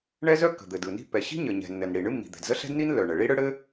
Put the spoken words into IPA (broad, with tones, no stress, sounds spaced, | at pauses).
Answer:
ɳ ɛ˥ z œ˥ kː ə̤˩ d̪ ɘ˩ d ɯ˩ n i̤˥ pː ɛ˩ ɕ i̤˥ ɲ ɘ˩ ɲ ɛ̤˩ nː ɘ˩ n ɽ i˩ ɳ ɨ˥ mː i̤˩ d̪ ɛ̤˩ d z ə˥ ɬ ɛ̤˥ d n i˥ n lː œ˩ ɳ ə˩ ɭ i˥ ɽ ɯ˥ ɽ ɘ˥